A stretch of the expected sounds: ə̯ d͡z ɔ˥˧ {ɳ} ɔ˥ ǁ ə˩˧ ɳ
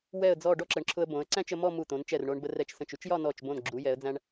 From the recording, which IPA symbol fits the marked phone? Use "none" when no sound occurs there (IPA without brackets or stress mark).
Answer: ɖ